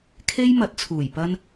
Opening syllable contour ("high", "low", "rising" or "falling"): high